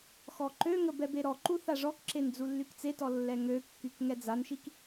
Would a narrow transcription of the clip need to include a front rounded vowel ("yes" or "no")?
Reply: yes